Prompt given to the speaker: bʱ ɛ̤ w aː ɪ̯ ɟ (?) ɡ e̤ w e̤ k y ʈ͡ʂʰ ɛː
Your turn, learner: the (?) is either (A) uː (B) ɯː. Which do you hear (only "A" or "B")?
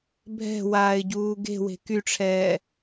A